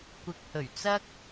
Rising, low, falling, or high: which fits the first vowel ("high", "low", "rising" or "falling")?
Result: low